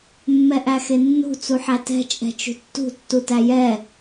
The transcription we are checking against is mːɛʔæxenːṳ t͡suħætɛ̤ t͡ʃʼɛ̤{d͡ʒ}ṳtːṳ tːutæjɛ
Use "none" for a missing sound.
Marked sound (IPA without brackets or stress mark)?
t͡ʃ